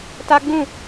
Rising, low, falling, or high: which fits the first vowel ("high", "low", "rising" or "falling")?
high